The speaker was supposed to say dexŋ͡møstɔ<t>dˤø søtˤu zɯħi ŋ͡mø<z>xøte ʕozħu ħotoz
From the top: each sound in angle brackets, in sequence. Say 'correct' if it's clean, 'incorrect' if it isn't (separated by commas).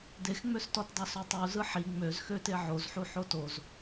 correct, correct